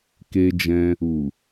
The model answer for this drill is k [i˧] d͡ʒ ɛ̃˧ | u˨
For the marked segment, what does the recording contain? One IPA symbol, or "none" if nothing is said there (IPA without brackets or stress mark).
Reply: e˧